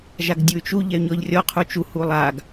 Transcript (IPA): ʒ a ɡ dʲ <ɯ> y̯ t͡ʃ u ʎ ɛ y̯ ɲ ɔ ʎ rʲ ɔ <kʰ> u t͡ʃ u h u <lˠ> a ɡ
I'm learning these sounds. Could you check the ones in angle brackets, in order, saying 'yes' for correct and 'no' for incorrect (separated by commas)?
no, no, yes